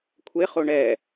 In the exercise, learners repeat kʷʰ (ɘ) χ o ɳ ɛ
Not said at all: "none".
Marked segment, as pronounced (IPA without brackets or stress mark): e